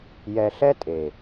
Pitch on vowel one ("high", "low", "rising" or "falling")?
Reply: low